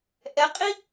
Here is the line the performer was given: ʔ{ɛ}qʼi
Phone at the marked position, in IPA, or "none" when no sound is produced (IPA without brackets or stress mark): ɛ